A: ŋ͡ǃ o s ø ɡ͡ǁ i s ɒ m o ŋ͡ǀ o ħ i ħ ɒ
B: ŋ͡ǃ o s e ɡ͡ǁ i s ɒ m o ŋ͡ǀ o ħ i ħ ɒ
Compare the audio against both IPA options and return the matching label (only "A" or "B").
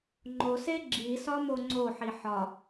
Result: B